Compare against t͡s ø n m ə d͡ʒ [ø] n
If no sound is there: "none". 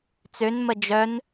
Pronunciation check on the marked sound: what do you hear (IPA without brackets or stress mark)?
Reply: œ